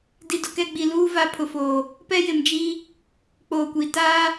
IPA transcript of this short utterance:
d i˨ d ʊ˨ k ɛ˦˨ ɡ͡b i˨ l uː˦ v a˦ pʰ ʊ˨ f oː˨ | p ɛ˦ j ɪ˨ m d͡ʒ i˦ | k͡p oː˨ kʷ i˨ t aː˦

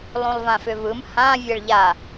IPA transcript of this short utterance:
lˠ ũ lˠ v ã f ʏ v ɯ m h ã vʲ ɛ ɭ ʎ a

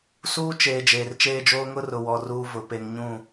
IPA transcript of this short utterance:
s uː˦ t͡ʃ eː˨ d͡ʒ eː˨ r t͡ʃ eː˦ d͡ʒ oː˦ ŋ ʊ˦ r ʊ˨ w ɔ˨ r uː˦ v ʊ˨ p e˨ ŋ ɲ ũ˦˨

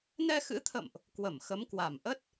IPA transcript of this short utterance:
n ɛ˧ x ɨ̰˧˥ t̪ʰ ə̰˧˨ m ʔ | k w ə˧˩ m x ə˨˦ m k w a˨˩ m ʔ ə˦˥ t̚

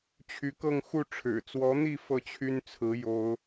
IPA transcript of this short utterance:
t͡ɕʰ y˧˥ k ɤ˥˧ ŋ x u˥˩ ʈ͡ʂʰ ɻ̩˨˩ t͡s w ɔ˧˥ n̪ i˥˧ f ɤ˥˩ t͡ɕʰ y˥ n t͡sʰ ɹ̩˧˥ j o˥ ʊ̯

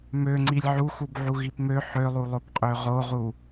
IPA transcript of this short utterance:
m ø ŋ͡ǀ i lʲ ʕ u x u b ʕ u ɣ i p m ø ħ ø lˠ u lˠ o p qʼ ø ʁ o ʁ u

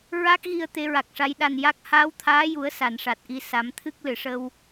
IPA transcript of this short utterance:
ɹ a˦˥ k̚ ɣ i˧ ə̯ t̪ e˧˥ ɹ a˨˩ k̚ ʂ a˧˥ j ɗ a˨˩ n j a˦˥ k̚ h aː˧˥ w t̪ʰ aː˧˥ j u˨˩˦ ə̯ s a˨˩˨ n ʂ a˨˩ t̚ ʔ i˧ s a˨˩˦ m t̪ʰ ɨ˦˥ k̚ l ɨ˨˩˨ ʂ ə˧ w

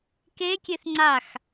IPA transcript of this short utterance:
k e kʲ e θ ŋ͡ǀ a x

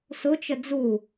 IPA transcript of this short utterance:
s ʊ t͡ʃ ə d͡z u

